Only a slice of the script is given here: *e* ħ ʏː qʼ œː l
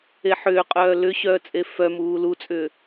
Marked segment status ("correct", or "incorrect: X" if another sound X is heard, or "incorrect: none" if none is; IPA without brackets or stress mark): correct